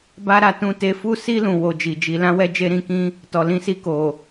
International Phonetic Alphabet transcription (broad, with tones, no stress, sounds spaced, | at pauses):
b a˦ ɾ a˦˨ t ũ˧ t e˧ f u˦ s i˦ l ũ˧ w o˧ d͡ʒ i˨ d͡ʒ i˨˦ l ã˦ w ɛ˦ d͡ʒ e˦ ɾ ĩ˧ k ĩ˦ | t ɔ˨ l ĩ˧ s i˧ k o˨